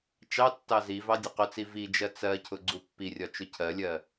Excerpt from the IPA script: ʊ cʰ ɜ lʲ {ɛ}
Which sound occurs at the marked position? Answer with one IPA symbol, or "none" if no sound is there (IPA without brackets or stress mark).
ɜ